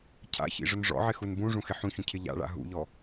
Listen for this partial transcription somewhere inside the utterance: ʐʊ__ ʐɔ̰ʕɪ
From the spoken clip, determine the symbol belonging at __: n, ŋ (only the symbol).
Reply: n